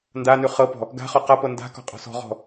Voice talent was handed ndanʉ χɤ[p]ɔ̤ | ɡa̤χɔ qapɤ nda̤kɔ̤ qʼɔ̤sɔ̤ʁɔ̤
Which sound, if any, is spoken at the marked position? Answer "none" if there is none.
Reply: p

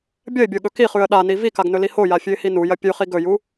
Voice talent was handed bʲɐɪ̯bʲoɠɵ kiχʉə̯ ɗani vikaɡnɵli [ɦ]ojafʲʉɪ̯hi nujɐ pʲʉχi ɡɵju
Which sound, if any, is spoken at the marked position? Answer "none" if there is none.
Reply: h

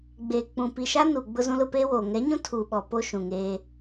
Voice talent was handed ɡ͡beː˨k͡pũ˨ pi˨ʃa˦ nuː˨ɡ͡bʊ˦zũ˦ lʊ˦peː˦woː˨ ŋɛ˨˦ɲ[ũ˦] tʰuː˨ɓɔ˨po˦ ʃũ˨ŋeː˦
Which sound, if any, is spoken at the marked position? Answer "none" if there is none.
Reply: ũ˦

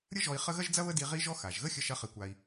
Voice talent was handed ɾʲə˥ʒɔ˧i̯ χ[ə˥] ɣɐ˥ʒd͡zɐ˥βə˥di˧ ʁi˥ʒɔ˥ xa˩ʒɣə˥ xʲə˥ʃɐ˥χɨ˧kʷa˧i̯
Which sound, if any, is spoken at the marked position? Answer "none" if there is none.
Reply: ə˥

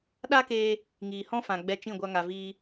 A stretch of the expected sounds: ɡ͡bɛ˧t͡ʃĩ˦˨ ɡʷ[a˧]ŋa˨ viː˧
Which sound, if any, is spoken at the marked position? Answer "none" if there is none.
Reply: a˧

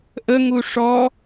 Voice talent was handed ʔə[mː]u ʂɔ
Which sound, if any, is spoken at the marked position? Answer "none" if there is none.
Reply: ŋ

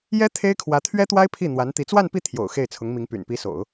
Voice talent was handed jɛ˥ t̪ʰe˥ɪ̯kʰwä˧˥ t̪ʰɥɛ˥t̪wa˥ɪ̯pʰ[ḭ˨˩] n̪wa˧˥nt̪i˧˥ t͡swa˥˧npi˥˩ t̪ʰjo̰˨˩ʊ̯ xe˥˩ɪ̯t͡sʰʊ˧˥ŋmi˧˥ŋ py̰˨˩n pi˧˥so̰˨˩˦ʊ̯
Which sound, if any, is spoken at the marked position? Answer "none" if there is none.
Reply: i˥˩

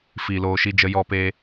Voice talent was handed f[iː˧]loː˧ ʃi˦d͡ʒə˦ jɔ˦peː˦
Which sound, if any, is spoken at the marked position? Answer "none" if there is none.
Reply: iː˧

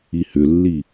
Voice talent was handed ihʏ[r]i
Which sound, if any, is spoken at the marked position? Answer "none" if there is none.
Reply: lː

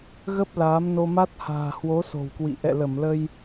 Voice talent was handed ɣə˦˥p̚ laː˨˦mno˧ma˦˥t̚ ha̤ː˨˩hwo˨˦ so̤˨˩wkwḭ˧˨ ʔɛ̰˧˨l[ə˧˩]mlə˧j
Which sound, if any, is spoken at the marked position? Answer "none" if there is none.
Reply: ə˧˩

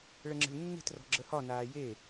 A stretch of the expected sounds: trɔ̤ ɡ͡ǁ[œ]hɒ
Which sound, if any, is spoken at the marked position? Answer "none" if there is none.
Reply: ə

